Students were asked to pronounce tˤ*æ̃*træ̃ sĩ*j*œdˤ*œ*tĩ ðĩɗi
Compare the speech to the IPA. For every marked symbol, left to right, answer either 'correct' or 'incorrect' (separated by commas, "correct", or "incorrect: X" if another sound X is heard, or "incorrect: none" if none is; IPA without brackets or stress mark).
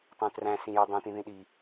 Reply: incorrect: œ̃, correct, incorrect: œ̃